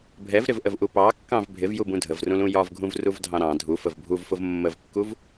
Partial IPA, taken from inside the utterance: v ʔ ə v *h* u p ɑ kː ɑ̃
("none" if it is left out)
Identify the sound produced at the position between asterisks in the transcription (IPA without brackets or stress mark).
ʔ